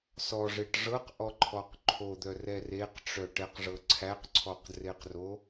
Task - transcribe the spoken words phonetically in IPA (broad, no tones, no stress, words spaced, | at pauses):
sɔʐeʈ ʐɤqʔɔǃʰɔq ǃʰod̪œrɛ reqʈ͡ʂœʈɛqʐɤ ǀʰæqǀʰɔqdreqro